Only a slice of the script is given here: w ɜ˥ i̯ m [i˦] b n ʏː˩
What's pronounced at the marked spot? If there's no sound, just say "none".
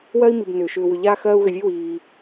i˨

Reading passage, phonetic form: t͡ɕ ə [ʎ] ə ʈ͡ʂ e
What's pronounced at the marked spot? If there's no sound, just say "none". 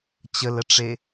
l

